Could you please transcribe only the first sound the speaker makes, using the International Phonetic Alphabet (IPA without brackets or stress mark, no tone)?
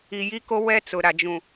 i